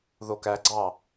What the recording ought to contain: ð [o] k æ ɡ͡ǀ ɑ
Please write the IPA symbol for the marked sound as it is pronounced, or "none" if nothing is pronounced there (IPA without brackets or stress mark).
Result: o